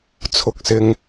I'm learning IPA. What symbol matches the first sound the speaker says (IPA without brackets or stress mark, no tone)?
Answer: t͡sʰ